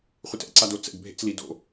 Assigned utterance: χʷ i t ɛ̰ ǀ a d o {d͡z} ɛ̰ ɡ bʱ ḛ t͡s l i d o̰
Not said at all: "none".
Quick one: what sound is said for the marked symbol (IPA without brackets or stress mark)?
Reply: t͡s